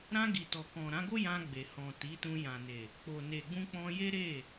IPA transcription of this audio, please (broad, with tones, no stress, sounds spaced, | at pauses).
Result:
ɾ ã˧ ɡ i˨ t ɔ˨ k ɔ̃˨ ɾ ã˨˦ ɡ o˦ j ã˧ ɡ͡b e˨ h ɔ̃˨ t i˨˦ t ũ˧ j ã˨ n e˨ | k͡p o˨ n e˨ ɡ͡b ũ˧ k͡p ɔ̃˧ j e˦ ɾ e˦˨